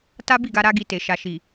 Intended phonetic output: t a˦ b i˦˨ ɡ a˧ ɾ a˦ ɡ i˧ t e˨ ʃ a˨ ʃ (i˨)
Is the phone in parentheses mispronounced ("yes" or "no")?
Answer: no